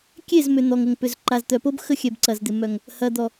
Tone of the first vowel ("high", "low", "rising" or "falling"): falling